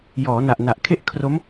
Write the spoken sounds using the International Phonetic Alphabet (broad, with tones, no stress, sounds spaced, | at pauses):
j ɔː˩˦ n a˨˩ ʔ n a˨˩ ʔ kʰ e˥˩ ʔ kʰ r o˦˥ m